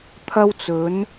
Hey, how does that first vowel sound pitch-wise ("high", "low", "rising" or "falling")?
high